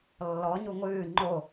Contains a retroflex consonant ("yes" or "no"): no